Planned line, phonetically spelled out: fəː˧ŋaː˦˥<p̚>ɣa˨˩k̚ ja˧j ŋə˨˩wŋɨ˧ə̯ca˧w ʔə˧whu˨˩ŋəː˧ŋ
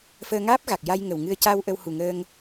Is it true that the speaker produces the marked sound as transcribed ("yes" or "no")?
yes